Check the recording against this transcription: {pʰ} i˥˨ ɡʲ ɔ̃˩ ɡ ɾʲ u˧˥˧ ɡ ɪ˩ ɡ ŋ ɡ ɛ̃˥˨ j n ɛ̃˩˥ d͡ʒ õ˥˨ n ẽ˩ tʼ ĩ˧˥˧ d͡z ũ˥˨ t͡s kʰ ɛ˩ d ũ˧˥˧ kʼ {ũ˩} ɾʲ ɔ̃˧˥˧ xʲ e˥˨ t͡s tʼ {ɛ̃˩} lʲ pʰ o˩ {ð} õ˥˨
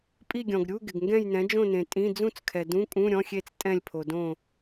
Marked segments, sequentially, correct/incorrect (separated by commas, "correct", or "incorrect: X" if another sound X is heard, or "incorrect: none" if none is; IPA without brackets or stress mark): incorrect: pʼ, incorrect: ũ˧˥˧, incorrect: ɛ̃˥˨, incorrect: d